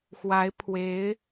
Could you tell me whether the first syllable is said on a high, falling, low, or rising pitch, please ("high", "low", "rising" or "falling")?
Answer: rising